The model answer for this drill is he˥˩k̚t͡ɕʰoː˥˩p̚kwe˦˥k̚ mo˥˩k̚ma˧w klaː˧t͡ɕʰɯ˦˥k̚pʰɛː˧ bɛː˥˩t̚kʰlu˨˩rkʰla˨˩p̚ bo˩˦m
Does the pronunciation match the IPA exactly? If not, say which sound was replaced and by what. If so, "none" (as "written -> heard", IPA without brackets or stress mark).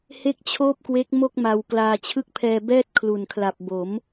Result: r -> n